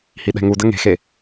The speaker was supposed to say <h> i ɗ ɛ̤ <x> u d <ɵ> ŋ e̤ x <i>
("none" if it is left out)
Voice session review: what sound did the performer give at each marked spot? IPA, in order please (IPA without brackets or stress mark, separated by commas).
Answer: h, ŋ, ə, e